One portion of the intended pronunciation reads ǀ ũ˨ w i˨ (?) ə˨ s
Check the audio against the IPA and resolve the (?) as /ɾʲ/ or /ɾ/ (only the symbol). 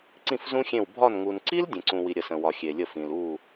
ɾʲ